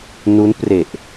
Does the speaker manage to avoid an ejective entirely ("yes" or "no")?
yes